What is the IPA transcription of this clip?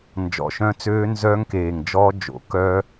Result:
n d͡ʒ ɔ̰˨˩ ʃ œ̃˦˥ t͡s øː˦˥ n z œː˦˥ ŋ k eː˨˩ ŋ d͡ʒ ɔː˦˥ d͡ʒ o̰˩˥ k œ˦˥

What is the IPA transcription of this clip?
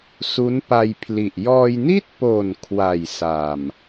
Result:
s u˦˥ n p a˧ j pʰ l i˨˩ ʔ j ɔː˧ j n i˥˩ t̚ p o˨˩ n kʰ w a˨˩ j s a˨˩ m

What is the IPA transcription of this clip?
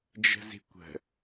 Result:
d͡ʒ ə̤ z i̤ kʷ ə̤

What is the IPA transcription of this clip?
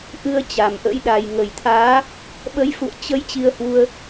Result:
ʔ ɨ˧ ə̯ t͡ɕ a˨˩ m ʔ ə̰˧˥ j ɗ a˨˩ j ŋ ə˨˩ j t̪ʰ aː˨˦ | ɓ ə˨˦ j f ṵ˧˨ ə̯ t͡ɕ ə˧ j t͡ɕ i˧ ə̯ h w u˧ ə̯

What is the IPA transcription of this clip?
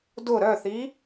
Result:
d ʊ ɾ œ θ i

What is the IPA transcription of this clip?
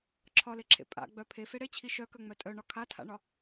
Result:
ǁʰ ɒ l e ǁʰ ḛ pʼ a̰ ɡ͡b œ pʰ e f e ɽ e t͡ɕʰ i ʃ œ k œ ŋ͡m œ tʼ œ ɳ ɒ kʰ a tʰ a̰ ɳ ɒ

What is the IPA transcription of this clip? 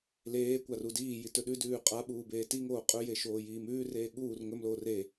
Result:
l eː kʷ a r u d iː j i t ɵ ɗ ʉ d ʉː qʼ a ɓ uː b eː t i ŋ oː qʼ ɵ j e ʃ oː j iː m ʉː r eː ɠ uː r ŋ ɵ m l oː r e

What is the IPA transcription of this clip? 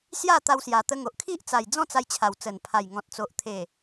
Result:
s j a˥˧ t̪ a˧ w s j a˨˩ t̪ ə˧ ŋ o˨ ʔ kʰ i˦ ʔ t͡s a˨˩ j d͡z ɔ̃˥˧ t͡s a˧ j t͡ɕʰ a˨˩ w t͡s ə˨˩ n pʰ a˨˩ j ŋ ɔ̃˨ t̚ t͡s o˨ ʔ t̪ʰ e˨˩

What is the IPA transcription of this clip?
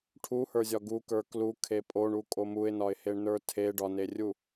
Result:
ʈʰ u h ə˞ zʲ ɒ ɡ u k ə˞ k l u kʰ e pʼ o ɳ u kʼ o m u ɪ̯ n ɒ ɪ̯ h e ɳ n ə˞ tʰ e ɖ ɒ n e rʲ u

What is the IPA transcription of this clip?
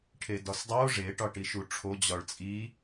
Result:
ʈʰ e d ɒ s dˤ o ʐ e ʈ ɒ ʈ i ʃ u ʈ͡ʂʰ o d͡ʑ ɒ ɭ t͡sʼ i

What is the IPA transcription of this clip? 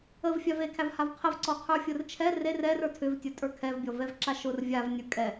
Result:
ə v fʲ a v e kʰ æ v h a v qʰ ə v ǀ ɔ qʰ ə˞ fʲ ʊ r t͡ʃʰ ɛ r e r ɛ r ə˞ tʰ ʏ v tʲ ə˞ tʼ ə˞ kʰ ɛ v bʲ ɔ v ɛ v ǁ a ʃ ʊ r vʲ a v nʲ ə˞ kʼ ɛ

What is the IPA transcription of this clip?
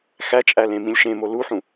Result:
x æ t͡ʃʼ æ l ẽ m ĩ lʲ ʃ ẽ m o l u ħ ũ

